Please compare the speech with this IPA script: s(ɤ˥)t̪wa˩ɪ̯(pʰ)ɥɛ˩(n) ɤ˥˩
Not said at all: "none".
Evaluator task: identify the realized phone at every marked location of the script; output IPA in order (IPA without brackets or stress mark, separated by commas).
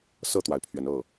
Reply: ɤ˥˩, pʰ, n